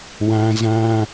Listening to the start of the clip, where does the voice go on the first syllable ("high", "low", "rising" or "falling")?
high